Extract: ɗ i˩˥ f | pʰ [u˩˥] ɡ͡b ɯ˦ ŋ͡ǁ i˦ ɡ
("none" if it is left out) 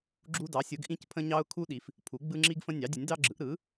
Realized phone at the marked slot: u˩˥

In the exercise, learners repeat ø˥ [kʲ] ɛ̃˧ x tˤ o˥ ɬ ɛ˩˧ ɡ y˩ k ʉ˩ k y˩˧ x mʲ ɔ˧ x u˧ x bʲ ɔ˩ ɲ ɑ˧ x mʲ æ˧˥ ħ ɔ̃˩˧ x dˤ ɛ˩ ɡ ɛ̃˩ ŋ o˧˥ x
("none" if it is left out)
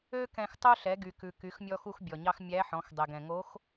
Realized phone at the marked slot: k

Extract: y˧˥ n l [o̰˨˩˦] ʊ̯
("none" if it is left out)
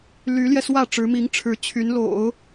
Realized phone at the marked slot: o̰˨˩˦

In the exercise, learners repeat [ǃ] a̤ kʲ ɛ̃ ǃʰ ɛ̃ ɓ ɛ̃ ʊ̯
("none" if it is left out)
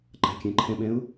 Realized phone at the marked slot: ǃ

